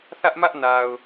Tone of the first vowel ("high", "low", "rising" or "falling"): high